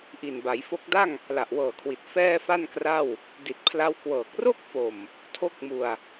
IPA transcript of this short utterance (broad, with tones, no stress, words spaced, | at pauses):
ʔi˨˩nba˩˦jfo˦˥k̚ da˥˩ŋ | la˨˩ʔwɤː˨˩kʰwi˨˩t̚ fɛː˥˩fa˥˩nkra˥˩w | di˨˩t̚pʰla˦˥wkwɤː˨˩k̚ ro˥˩k̚fo˨˩m | tʰo˦˥k̚mu˨˩a̯